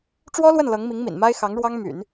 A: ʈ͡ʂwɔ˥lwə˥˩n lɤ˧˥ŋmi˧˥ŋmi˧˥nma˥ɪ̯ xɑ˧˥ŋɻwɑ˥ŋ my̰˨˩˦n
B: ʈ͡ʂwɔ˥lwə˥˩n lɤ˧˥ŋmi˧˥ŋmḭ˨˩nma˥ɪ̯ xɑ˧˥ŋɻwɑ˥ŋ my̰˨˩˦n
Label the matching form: B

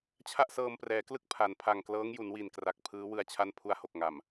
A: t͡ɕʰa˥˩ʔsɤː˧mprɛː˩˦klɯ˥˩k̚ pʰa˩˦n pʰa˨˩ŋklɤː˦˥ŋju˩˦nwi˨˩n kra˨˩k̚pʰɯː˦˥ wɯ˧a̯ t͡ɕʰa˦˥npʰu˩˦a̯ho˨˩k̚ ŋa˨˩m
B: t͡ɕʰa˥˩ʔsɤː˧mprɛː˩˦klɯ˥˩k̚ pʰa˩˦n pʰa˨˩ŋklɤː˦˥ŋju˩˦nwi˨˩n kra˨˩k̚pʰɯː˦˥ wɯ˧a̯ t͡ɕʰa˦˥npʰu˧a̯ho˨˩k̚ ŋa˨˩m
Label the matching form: B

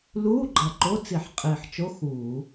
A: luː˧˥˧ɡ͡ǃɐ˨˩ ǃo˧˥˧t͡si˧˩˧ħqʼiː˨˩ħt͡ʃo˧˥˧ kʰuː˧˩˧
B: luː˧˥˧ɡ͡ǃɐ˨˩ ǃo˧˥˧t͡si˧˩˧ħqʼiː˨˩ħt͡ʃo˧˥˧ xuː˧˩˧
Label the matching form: B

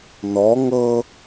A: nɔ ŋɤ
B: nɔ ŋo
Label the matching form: A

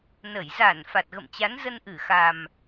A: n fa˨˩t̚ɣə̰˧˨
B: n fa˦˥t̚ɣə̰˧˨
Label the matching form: A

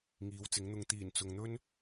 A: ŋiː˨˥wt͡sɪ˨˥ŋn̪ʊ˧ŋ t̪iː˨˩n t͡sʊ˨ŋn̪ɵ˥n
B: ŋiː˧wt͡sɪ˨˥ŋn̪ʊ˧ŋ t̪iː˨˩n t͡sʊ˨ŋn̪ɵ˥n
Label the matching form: A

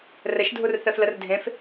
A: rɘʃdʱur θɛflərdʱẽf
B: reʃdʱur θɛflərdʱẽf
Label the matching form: A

